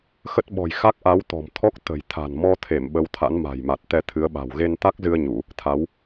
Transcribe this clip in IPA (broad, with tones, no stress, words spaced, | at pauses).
xə˦˥t̚ɓɔ̤˨˩j xa˦˥k̚ʔa˨˦wt̪ɔ̤˨˩mt̪ʰɔ˦˥k̚ t̪ə̤˨˩j t̪ʰa̤˨˩nmɔ˧t̪ʰe˧˩m ɓə˨˦wt̪ʰa̰˧˥n ma̤˨˩jma˨˩t̚ t̪ɛ˧t̪ʰɨ˨˦ə̯ɓa̤˨˩w ɣe˧nt̪a˦˥k̚zɨ˧ə̯ ɲu˧˩˨ | t̪ʰa˨˦w